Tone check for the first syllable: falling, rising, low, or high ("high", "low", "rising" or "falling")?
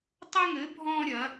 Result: high